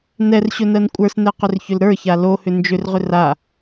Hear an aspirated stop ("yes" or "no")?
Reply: no